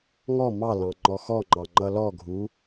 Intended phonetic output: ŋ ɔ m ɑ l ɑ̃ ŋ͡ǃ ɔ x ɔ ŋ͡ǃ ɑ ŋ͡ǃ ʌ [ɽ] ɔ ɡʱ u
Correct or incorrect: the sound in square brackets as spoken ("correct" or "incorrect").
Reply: incorrect